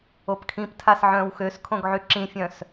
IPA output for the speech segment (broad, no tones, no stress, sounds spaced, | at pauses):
o p kʰ ĩ p tʰ a s ʕ œ̃ː w x ø s kʰ õ ɡ ʕ y ǁ ĩ fʲ œ̃ s